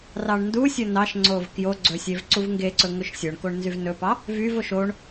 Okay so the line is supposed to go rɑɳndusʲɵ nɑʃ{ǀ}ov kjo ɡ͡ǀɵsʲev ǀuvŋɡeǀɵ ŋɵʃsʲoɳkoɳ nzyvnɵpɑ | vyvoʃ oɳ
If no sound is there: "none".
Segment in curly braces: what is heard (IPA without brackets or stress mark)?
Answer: ŋ͡ǀ